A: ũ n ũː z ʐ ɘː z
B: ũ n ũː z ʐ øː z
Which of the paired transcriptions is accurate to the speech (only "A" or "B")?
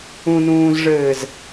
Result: A